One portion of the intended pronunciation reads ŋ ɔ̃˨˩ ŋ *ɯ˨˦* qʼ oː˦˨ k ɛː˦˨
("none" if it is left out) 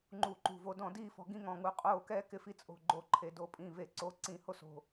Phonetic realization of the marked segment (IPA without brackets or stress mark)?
u˨˦